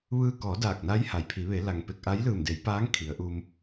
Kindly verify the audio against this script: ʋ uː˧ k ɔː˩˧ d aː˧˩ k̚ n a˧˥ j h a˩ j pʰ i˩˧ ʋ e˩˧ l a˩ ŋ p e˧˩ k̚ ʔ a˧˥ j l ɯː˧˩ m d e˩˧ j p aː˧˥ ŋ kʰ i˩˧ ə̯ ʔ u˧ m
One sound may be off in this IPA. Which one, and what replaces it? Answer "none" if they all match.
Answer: uː˧ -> ɯː˧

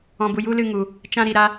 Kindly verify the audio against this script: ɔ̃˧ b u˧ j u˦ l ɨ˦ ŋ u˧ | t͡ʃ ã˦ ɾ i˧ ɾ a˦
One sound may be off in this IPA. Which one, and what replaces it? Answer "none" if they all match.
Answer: none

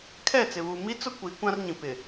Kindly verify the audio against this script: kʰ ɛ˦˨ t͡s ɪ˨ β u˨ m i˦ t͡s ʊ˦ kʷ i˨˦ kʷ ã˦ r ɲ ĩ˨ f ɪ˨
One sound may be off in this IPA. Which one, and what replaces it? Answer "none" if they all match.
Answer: f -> p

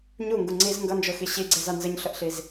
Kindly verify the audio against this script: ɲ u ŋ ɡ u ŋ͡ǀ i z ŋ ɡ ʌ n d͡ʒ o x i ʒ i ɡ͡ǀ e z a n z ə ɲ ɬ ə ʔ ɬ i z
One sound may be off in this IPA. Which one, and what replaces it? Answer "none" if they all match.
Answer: ʒ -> ɕ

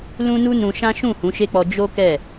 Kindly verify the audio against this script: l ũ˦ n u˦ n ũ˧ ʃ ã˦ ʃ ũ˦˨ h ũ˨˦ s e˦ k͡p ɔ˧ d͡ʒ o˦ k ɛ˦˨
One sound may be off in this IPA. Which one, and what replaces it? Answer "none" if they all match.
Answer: s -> ʃ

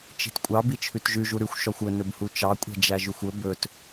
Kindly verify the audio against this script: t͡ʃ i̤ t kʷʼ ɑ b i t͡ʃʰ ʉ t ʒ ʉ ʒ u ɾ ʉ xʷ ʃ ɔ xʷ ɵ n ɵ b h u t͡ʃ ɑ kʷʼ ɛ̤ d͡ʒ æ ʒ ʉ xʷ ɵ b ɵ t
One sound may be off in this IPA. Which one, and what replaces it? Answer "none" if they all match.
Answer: none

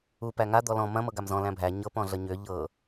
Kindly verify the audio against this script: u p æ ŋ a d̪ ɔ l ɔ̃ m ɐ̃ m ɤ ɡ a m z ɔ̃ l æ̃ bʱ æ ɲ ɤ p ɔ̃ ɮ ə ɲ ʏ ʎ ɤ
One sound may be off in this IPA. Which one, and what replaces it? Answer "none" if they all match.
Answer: none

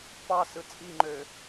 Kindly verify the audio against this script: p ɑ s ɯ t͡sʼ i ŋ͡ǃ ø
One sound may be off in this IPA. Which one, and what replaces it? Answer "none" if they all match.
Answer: none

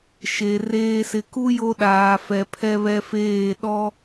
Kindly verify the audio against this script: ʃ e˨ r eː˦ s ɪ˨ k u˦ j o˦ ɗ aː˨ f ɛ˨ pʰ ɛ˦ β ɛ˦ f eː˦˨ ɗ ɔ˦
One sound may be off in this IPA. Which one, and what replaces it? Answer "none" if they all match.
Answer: none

